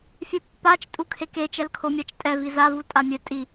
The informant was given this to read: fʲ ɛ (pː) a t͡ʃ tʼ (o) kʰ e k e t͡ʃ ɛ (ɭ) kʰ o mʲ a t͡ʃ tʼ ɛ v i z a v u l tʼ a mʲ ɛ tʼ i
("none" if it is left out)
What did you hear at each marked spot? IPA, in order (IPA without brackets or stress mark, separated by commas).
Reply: pː, u, l